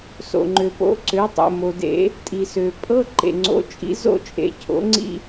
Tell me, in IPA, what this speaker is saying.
s o̰˩ ŋ͡ǃ ø˩ p o̰˩˥ ǀ ø˩˥ tˤ o̰˩ m o˩ d ḛ˨˩˦ | tʼ i˩ s ø˩ pʼ ɤ˧˥˧ ǃ ḛ˩ ŋ͡ǀ o̰˩˥ t͡ʃʼ ḭ˩˥ z o̰˥˧ t͡ʃʼ ḛ˩˥ cʰ o̰˩˥ ŋ͡ǀ ḭ˥˧

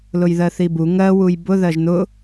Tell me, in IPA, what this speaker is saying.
l ʊ j ð ɜ θ i b u ŋ ɜ w u j b ʊ ð ɜ ʒ n ʊ

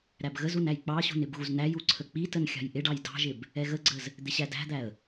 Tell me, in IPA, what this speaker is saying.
ɾ æ b ɣ ə z u n æ j k͡p ɑ ɕ ṳ n ɪ b ɣ u z n æ j u ǀʰ ə k͡p i t ə n xʲ ɑ̤ j ʔ ɪ ɖ ɑ j d ɑ̤ ʒ ɪ b | ɛ ɣ ə ɡ͡ǀ ə z | d̪ ɪ ɕ æ d æ̤ d̪ æ ə̯

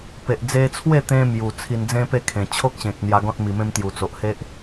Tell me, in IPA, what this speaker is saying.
p e˨ ʔ d͡z e˧ t͡sʰ w e˥˧ t̪ ẽ˧ m j u˨˩ t͡sʰ i˧ n d͡z ẽ˦ p e˥˧ kʰ ẽ˨˩ t͡ɕʰ o˦ k̚ ɕ ẽ˨ k̚ n̪ j a˧ ɡ ɔ̃˦ t̚ m i˨˩ m ẽ˧ m t̪ j u˨˩ t͡s o˨ ʔ h e˦ ʔ

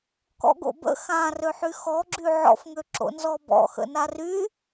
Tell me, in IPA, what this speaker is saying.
k ɔ̰ ɡ o̰ b ə̰ x ã r ø ħ y x ɔ ɡ͡ǁ y ʕ ɔ̰ f ŋ ø ǁ o̰ n z ɔ b ɔ̰ x ə̰ n a r y

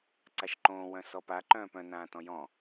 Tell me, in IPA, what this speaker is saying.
ǀ a ʃ ǃ õː w œ̃ s ɔ p a ǃ œ̃ː p œ̃ n ãː t ɔ̃ j ɔ̃

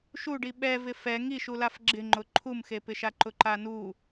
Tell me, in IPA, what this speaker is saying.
ʃ u ɖ i ɓ ɛ v ɪ f ɛ ŋ i ʃ u l a f ɡ͡ǁ ɪ ŋ͡ǃ ʊ ǃʰ u m x e p ɪ ʃ a ǃ ʊ ǃ a n u

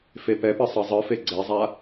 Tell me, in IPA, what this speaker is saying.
f e p ɛ p ɯ sˤ ɤ zˤ ɯ f e ɡ͡ǀ e zˤ a

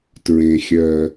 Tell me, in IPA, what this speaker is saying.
t ɹ ẽ˩ xʲ ɜ˩

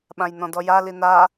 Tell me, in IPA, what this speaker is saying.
ɓ ã j n ɔ̃ d ɔ j a l i n a

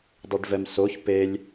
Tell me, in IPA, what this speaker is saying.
dˤ i ɖ v ɛ m s o ç p e lʲ

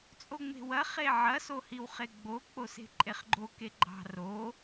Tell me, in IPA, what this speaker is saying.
t͡sʼ o ŋ͡m e̤ w ɐ χ e ʕ ɐ s o h i w χ e ɡ͡b o k͡p o s e̤ ǃʼ e χ ɡ͡ǃ o k e ɡ͡ǃ ɑ̤ r o

